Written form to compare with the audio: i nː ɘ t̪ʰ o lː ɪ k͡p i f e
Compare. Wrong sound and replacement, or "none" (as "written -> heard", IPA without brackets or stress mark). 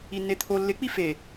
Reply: ɘ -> e